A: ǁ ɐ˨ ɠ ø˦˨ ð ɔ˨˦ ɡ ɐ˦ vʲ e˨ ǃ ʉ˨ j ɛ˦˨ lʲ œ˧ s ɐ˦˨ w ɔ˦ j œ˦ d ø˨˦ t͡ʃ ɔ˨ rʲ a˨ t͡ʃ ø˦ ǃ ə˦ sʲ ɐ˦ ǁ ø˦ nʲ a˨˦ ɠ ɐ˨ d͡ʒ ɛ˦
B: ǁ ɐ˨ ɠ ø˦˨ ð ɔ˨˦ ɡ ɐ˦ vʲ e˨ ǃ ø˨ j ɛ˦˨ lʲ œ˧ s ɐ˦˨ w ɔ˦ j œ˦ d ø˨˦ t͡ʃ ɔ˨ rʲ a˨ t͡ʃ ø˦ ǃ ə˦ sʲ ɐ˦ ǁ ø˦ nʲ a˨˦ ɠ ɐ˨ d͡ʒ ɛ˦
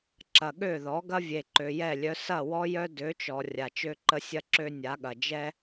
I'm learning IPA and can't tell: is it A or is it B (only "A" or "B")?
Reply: B